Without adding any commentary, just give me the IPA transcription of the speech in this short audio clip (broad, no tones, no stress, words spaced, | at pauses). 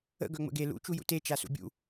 ə̰ ɡœŋ͡mə̰ɡe lṵ t͡ʃujṵte t͡ʃasṵbʲṵ